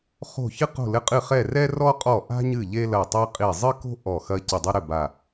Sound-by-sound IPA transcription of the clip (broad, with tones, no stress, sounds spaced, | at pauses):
χ o̤˧˩ ç ɨ˦ q o̤˧˩ l ɘ˧˩ qʼ ɨ˧˩ χ ɛ˧˩ r ɛ˦ r ɔ˦ qʼ ɔ˧˩ ʔ a̤˦ ɲ ɨ˧˩ ʎ e˦ l ɐ˧˩ tˤ ɛ˦ qʼ i˧˩ zˤ ɨ˦ k o̤˦ ʔ ɔ˧˩ x ɐ˦ c ɘ˧˩ dˤ ɨ˦ ɾ ɘ˧˩ b a˧˩